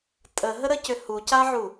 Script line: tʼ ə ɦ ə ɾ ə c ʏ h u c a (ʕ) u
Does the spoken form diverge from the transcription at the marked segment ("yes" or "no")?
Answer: no